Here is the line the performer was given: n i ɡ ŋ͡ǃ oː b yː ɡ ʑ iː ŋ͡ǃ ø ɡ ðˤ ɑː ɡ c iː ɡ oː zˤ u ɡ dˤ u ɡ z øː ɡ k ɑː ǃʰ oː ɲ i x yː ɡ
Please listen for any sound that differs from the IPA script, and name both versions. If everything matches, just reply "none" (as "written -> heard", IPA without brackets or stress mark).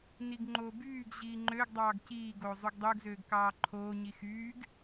ðˤ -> dˤ